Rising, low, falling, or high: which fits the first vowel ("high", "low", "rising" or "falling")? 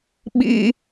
high